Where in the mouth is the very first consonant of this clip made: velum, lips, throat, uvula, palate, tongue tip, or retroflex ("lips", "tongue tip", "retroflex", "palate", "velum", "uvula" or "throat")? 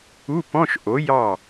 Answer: lips